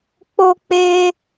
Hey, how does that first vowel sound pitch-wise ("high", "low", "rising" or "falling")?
high